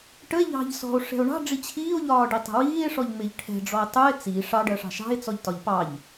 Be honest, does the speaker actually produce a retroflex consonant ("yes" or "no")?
yes